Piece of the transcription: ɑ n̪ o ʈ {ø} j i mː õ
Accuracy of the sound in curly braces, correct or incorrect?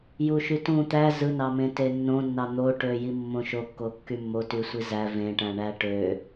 correct